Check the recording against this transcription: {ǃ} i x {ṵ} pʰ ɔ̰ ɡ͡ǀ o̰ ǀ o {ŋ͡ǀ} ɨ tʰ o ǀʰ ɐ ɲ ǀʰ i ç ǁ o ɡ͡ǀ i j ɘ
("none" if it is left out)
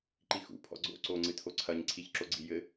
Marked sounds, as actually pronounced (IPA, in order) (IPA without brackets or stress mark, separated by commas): ǃ, ṵ, ŋ͡ǀ